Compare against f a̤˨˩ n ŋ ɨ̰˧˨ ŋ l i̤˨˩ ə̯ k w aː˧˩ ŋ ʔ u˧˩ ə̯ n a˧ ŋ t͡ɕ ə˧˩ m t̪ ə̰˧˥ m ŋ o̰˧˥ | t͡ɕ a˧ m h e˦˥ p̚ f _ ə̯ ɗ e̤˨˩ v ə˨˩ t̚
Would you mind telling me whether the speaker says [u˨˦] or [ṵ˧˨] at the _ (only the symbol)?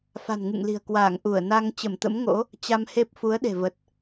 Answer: u˨˦